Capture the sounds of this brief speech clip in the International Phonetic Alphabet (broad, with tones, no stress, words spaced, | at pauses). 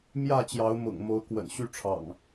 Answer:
mjä˥˨t͡ɕjɑ˨˦ʊ̯mʊ̰˨˩ŋmo˨˦ʊ̯ kwə̰˨˩nɕy˦ʈ͡ʂʰɑ̰˨˩ŋ